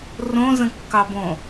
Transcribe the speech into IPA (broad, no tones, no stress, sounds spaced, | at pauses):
r õ z ə̃ kː ɑ b õ